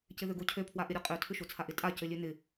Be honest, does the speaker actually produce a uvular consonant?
yes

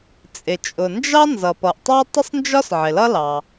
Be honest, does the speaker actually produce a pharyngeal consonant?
yes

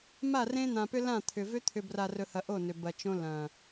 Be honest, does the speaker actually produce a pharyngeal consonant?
no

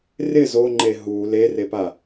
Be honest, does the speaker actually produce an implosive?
no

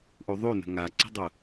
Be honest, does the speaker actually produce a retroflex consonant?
no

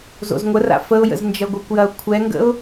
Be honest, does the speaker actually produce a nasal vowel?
no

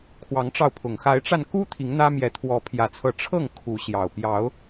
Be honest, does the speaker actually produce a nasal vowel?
no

